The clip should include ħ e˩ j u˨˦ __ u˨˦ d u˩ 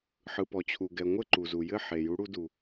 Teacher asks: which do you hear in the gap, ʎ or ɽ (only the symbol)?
ɽ